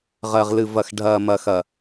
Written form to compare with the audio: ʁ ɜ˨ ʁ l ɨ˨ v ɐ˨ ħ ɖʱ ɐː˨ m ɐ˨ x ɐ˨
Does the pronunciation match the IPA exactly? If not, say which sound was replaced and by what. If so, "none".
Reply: ħ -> x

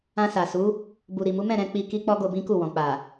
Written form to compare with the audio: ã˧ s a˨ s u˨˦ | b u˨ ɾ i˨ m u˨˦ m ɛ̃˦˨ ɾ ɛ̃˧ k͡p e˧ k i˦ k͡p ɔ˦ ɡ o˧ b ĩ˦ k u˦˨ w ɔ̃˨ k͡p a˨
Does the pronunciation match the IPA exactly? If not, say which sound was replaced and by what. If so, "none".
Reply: e˧ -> i˧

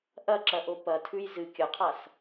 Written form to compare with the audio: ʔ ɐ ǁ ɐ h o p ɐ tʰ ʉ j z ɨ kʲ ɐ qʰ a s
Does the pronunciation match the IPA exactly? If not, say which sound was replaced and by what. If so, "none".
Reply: h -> ʔ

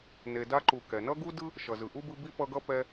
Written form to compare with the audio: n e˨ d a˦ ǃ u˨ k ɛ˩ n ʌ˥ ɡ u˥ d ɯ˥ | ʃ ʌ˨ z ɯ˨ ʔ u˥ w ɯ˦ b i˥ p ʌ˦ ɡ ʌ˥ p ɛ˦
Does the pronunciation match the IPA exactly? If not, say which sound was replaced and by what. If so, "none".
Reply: w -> b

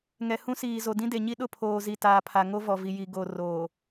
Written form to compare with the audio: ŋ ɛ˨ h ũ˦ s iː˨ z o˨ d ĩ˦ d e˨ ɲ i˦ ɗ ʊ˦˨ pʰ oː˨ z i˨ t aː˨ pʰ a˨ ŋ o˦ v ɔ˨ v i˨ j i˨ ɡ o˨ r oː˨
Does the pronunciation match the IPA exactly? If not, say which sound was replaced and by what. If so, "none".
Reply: none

